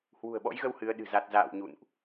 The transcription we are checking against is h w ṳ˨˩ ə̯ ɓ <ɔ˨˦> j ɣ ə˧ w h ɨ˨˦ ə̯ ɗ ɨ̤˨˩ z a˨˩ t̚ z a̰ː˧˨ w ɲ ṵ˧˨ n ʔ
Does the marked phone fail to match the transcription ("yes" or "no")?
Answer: yes